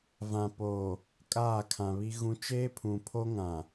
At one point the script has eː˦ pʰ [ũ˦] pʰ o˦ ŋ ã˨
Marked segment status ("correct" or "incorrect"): incorrect